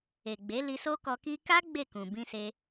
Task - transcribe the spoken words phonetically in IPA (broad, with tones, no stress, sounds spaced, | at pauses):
e˨ ɡ͡b e˨˦ l i˧ s o˦ k ɔ˧ k i˦ k a˦ ɡ͡b e˦˨ k ũ˨ b ĩ˧ s e˧